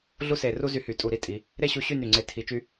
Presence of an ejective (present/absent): present